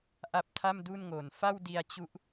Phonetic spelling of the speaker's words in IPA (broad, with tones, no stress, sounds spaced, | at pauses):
ʔ a˦˥ p̚ tʰ a˥˩ m d u˥˩ n ŋ o˨˩ n f a˥˩ w d i˧ a̯ t͡ɕ u˦˥ ʔ